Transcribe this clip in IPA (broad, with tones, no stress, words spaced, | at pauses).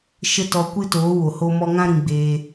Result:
ʃə˦ tɔ˧kʷɨ˦toː˨˦wo˨ ho˧mɔ˧ŋã˦ ɾĩ˧ɡ͡beː˧